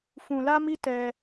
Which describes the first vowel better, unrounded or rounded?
rounded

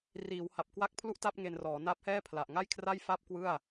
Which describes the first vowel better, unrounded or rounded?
unrounded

